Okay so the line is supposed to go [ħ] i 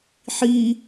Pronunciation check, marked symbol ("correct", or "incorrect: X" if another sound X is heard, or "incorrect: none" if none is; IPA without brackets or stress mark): correct